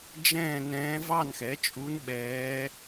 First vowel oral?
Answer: no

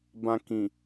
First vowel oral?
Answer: no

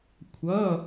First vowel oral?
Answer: yes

